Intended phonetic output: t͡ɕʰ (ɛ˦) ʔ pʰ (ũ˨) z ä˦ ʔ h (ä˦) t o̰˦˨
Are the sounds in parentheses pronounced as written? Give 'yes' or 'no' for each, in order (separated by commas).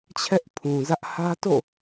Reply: yes, yes, yes